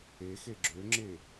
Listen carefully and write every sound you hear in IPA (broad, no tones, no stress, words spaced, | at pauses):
exe ɡ͡ǁøŋ͡ǁe